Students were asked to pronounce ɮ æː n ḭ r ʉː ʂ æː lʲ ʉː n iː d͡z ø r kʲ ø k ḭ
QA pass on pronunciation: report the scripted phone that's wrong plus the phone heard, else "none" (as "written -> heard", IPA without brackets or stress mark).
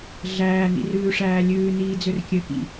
none